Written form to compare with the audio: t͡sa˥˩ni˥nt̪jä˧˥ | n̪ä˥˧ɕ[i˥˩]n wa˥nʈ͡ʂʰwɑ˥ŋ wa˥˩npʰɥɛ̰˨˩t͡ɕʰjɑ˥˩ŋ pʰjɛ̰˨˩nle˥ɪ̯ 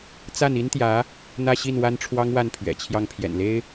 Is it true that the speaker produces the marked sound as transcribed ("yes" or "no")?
yes